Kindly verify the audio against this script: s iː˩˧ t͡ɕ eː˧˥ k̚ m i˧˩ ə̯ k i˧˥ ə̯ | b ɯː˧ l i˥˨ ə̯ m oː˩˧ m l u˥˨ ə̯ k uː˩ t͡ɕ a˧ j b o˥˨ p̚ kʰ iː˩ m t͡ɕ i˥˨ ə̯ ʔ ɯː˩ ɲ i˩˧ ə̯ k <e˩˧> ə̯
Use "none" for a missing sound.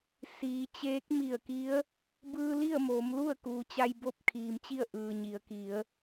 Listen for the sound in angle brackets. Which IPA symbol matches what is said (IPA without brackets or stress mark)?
i˩˧